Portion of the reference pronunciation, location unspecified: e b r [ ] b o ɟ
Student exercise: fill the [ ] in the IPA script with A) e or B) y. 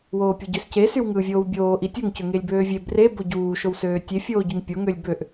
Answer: A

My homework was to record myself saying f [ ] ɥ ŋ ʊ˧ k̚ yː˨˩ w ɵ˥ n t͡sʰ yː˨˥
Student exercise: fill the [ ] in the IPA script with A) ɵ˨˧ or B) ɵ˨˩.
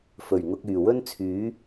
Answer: B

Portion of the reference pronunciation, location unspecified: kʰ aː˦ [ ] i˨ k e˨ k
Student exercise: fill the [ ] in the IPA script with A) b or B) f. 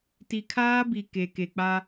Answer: A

